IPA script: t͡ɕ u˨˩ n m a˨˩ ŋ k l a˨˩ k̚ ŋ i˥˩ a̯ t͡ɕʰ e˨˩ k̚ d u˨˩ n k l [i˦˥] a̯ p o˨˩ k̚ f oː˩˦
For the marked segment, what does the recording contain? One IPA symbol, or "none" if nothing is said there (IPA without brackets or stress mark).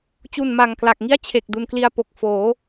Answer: i˧